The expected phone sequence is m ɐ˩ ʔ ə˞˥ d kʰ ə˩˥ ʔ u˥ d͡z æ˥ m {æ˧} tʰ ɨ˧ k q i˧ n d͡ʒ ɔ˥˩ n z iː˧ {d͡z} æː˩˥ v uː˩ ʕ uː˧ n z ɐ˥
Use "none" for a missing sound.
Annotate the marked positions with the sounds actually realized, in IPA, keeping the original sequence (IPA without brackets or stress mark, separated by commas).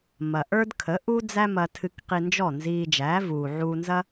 ɐ˧, d͡ʒ